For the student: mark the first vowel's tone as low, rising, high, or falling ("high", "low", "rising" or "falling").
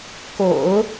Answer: low